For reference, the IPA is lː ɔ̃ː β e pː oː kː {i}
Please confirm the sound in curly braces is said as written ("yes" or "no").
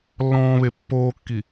yes